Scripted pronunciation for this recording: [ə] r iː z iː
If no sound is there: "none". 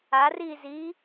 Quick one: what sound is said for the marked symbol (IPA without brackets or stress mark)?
a